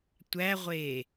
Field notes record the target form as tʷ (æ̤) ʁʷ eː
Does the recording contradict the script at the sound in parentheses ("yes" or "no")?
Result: yes